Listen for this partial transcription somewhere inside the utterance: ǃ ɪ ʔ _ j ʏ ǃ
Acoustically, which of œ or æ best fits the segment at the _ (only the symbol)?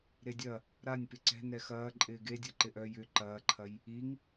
œ